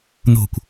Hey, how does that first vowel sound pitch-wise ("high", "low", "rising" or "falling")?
falling